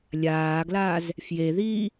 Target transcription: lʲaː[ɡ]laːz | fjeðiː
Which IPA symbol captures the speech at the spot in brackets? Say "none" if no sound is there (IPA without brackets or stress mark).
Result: ɡ